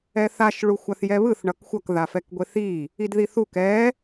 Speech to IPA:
ɛθaʃ ɭuxʷaθjɛβɯθ ɳʌkxʷʌk ðafɛkɡʷeθi | idðiθuk ɛ

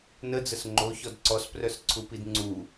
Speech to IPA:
nəd͡zəs ŋ͡ǃoçɔd ǀɔsprœsǀʰupid ŋ͡ǀu

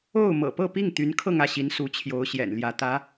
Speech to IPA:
o˥˩ʊ̯ mɤ̰˨˩pɤ˥˧pi˥˩ŋt̪y˧˥n kʰɤ˥˧ŋä˥˩ɕi˧˥n su˧˥t͡ɕʰjo˧˥ʊ̯ ɕjɛ̰˨˩nljä˧˥t̪ä˧˥

